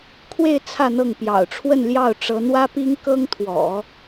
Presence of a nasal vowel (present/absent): absent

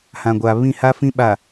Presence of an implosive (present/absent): present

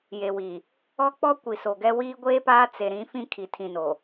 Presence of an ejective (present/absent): absent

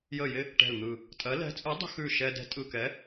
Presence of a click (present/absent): absent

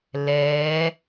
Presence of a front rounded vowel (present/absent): absent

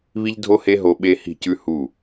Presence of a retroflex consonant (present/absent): absent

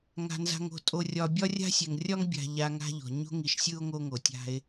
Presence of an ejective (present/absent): present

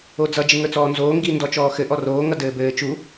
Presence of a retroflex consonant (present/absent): absent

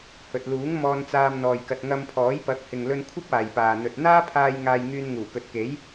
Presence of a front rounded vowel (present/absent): present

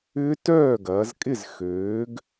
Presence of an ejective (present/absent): present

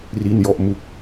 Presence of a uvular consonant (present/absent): absent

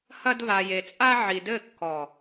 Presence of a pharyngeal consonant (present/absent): present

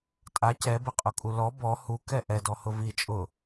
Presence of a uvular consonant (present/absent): present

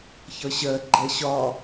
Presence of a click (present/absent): present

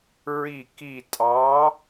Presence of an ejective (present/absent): present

